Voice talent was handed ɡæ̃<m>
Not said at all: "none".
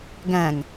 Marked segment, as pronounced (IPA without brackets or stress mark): ŋ